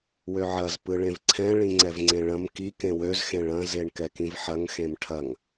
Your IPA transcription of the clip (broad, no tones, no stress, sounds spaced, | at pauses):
w ø ʕ ɐ z p ɯ ɭ ẽ v ǀʰ ɛ̃ ɭ ĩ ŋ͡ǀ ɛ v ŋ͡ǀ ẽ ɭ ɐ̃ m k i k ẽ w ø z x ẽ ɭ ɐ̃ z e ɳ k ɛ k ĩ v ħ ɐ ŋ x ẽ m ʈʰ ɐ ŋ